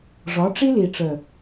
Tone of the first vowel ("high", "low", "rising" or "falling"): rising